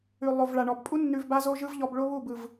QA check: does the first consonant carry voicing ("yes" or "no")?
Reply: yes